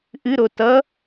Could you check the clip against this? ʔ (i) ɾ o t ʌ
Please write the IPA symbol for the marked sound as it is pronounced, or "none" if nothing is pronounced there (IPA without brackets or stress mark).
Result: ɨ